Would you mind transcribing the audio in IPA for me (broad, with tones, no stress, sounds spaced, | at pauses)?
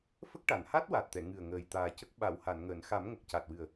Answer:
f ə˦˥ k̚ ʈ a˨˩˨ n h a˦˥ t̚ w a˨˩ t̚ t̪ ɛ˨˩˨ ŋ ɨ˨˩ ə̯ ŋ əː˨˩ j t̪ aː˨˩ c ə˦˥ k̚ ɓ a˨˩˨ w h a˨˩˨ n ŋ əː˨˩˨ n x a˨˩˦ m ŋ ə˨˩ k̚ c a˨˩ t̚ w ɨ˨˩ ə̯